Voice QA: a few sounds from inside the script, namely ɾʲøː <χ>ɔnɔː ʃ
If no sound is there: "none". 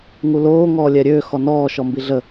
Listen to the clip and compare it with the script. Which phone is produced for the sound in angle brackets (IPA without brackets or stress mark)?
x